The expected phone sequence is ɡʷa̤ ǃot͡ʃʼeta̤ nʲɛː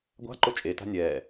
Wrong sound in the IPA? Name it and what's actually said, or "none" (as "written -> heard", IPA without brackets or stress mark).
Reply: none